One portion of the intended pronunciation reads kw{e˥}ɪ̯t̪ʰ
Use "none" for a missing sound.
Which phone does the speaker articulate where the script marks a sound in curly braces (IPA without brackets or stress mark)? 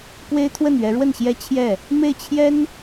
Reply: e˥